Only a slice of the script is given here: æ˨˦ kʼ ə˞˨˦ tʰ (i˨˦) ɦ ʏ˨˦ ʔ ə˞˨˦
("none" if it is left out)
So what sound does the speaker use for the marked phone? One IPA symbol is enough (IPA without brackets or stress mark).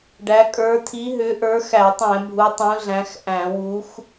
i˨˦